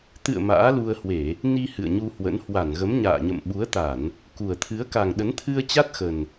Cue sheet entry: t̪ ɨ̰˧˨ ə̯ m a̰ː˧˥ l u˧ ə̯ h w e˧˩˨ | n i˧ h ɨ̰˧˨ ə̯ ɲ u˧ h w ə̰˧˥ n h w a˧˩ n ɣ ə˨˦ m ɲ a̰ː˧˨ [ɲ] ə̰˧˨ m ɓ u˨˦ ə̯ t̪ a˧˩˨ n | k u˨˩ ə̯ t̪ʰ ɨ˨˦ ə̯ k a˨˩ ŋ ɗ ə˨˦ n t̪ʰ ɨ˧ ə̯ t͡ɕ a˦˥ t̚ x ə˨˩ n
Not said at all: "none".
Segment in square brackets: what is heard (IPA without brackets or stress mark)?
ɲ